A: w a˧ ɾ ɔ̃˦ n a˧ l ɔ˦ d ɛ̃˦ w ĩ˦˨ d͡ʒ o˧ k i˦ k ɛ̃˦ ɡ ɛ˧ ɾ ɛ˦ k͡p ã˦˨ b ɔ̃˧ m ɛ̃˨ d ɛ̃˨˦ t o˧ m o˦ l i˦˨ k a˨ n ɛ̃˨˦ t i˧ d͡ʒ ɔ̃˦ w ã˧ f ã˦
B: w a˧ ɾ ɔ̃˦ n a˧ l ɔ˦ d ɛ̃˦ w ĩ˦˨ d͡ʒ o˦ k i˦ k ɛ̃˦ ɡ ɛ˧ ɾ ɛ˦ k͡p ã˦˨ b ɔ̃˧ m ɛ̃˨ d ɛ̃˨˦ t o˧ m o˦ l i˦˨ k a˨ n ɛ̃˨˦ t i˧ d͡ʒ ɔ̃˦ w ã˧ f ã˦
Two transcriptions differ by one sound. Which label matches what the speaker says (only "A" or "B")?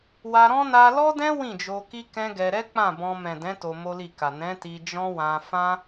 A